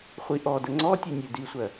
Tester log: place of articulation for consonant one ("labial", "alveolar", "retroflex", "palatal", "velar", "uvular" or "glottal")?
uvular